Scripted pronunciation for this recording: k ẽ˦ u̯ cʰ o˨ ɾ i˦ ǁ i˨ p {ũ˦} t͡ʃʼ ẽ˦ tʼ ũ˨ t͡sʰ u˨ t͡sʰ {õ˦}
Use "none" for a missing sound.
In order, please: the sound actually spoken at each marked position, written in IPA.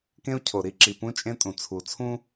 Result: ũ˦, ũ˦

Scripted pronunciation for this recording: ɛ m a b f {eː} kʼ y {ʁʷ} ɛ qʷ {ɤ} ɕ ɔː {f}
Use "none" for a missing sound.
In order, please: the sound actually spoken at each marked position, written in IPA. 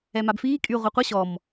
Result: iː, ʁʷ, ɤ, m

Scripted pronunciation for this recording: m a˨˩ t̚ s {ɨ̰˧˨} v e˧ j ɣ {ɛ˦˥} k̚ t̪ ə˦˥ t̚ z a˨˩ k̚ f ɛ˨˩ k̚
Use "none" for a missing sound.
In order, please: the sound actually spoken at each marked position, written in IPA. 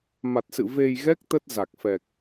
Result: ɨ̰˧˨, ɛ˦˥

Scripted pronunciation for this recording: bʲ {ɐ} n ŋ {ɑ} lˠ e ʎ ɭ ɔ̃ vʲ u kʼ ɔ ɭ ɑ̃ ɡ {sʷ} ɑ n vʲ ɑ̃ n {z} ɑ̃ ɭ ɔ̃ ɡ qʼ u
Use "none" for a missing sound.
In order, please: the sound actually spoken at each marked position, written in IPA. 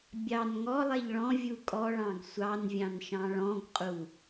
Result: ɑ, ɔ, sʷ, ʃ

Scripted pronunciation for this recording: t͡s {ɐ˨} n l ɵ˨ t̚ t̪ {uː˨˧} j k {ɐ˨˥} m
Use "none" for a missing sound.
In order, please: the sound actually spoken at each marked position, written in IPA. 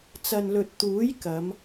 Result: ɐ˨, uː˨˥, ɐ˨˧

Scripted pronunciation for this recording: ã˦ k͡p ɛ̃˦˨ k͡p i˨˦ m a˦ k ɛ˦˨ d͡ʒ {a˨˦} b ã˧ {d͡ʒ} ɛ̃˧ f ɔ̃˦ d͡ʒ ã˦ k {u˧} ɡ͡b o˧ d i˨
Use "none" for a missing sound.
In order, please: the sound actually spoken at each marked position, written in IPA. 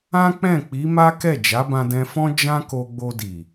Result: a˨˦, d, o˧

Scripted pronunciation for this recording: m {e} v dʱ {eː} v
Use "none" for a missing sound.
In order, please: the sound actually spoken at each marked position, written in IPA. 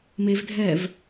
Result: e, ɛː

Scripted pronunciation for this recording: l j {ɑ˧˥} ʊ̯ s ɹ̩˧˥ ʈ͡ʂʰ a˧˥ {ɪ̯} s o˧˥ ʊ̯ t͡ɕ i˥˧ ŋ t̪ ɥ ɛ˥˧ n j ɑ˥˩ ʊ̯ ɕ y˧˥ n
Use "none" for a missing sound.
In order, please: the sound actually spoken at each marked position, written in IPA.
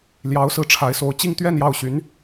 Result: ɑ˧˥, ɪ̯

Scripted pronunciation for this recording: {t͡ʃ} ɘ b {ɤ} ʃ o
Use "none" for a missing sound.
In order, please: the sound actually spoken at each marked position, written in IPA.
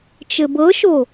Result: t͡ʃ, ɤ

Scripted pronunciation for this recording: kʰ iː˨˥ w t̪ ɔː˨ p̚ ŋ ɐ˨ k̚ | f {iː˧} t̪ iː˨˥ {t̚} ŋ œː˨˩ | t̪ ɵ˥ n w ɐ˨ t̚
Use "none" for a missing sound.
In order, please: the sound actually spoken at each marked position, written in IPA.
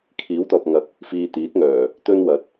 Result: iː˧, t̚

